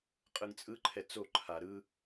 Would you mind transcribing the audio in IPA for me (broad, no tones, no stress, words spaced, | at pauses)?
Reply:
qʼɯŋt͡sʼɯǃʰɛt͡s oǃʰa ɾɯ